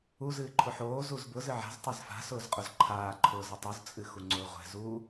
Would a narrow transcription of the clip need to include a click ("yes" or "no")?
yes